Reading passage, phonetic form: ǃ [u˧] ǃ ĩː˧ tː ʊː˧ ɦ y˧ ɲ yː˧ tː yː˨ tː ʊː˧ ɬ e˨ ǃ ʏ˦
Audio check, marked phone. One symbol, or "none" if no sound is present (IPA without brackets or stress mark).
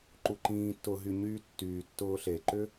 u˧